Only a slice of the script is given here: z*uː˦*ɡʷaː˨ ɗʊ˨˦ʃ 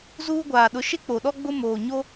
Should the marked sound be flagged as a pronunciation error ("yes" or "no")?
no